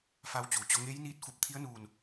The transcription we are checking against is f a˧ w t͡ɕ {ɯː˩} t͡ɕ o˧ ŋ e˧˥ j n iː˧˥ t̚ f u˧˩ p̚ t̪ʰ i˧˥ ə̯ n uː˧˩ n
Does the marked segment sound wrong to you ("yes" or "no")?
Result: yes